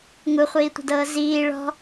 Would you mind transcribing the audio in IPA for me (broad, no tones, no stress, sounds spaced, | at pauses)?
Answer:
ŋ u χʷ iː tʷ ə̤ d ɤː z iː ɭ ɔ̤